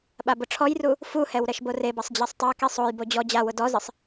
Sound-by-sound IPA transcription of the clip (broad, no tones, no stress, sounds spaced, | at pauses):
ɓ a b ʊ ʈ͡ʂʰ ɔ j r u | f u h ɛ w ɾ ɛ ʃ b o r e b a sˤ d͡ʑ a sˤ tˤ a k i sˤ o j b o d͡ʑ ɔ d͡ʑ a w ʊ d ɔ z ɪ sˤ